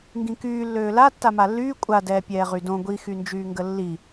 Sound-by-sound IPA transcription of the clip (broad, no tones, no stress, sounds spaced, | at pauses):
ŋ ɡ ĩ k yː lː øː l a tː a m a lː yː kʷʼ a d ɛː pʲ ɛː ʁ y d õ ɡʷ i x y n d͡ʒ yː ŋ ɡ ə lː i